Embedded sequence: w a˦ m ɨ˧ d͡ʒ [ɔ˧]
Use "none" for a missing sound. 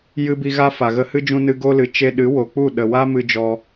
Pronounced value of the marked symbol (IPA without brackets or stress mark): ɔ˧